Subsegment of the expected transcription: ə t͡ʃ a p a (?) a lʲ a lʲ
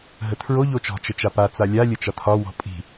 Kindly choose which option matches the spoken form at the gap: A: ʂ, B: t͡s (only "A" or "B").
B